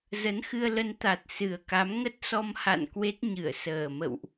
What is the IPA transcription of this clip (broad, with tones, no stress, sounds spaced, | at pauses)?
z ə˨˦ n x ɨ˧ ə̯ l ə˧ n t̪ a˨˩ t̚ s ɨ˨˩ ə̯ k a˨˦ m ŋ ə˦˥ t̚ s ɔ˧ m h a̰˧˨ n k w e˦˥ t̚ ɲ ɨ˧˩ ə̯ s əː˨˩ m ə̰˧˨ w ʔ